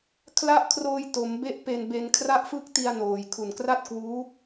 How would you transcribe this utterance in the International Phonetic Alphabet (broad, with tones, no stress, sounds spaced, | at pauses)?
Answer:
kʰ l a˦˥ ʔ kʰ r oː˧ j t o˩˦ m b e˦˥ ʔ p e˧ n b e˧ n kʰ r a˦˥ ʔ f ɯ˦˥ k̚ t i˧ a̯ n oː˨˩ j kʰ u˨˩ n k r a˥˩ t̚ k w uː˦˥